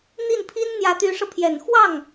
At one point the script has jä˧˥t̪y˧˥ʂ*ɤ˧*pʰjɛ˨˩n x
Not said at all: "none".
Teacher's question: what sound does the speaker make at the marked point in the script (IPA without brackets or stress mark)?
ɤ˧